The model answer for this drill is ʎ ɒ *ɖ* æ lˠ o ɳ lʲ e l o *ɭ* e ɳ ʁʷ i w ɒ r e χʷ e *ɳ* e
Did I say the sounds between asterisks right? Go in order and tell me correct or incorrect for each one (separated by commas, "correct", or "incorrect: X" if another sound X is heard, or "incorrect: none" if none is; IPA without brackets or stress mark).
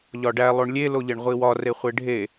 correct, incorrect: ʎ, incorrect: ɖʱ